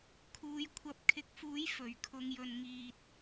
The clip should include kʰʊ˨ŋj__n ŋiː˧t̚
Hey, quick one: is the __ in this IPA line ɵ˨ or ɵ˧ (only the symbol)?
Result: ɵ˨